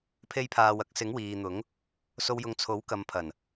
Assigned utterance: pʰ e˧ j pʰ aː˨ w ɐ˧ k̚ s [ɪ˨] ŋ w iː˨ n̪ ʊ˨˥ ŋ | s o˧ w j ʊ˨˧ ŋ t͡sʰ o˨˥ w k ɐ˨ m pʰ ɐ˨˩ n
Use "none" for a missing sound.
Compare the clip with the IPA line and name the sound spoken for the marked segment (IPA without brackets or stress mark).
ɪ˨˥